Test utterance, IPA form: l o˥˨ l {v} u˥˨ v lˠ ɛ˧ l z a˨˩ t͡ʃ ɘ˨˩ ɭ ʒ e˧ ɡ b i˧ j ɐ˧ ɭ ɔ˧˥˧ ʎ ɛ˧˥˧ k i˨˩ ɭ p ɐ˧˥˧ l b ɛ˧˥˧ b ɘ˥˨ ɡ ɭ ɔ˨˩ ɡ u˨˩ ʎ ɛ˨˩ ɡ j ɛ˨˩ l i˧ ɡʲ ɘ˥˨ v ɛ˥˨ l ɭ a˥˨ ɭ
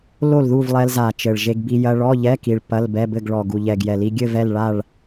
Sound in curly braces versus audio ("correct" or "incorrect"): incorrect